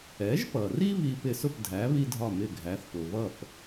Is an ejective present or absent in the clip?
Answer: absent